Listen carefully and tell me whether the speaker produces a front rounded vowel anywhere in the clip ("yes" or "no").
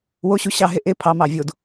no